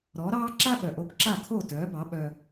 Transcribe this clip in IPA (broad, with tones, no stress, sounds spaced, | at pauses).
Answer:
ɾ ɔ˩˥ ɾ ɑː˥ ǁ a˥ ɓ œ˩ ʔ o˧ b ǁ a˥˩ kʰ o˥˩ t œː˩˥ b ɑ˩˥ ɓ œ˧